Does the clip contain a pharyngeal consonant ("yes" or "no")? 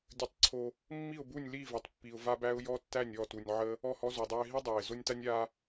yes